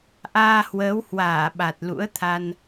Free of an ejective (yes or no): yes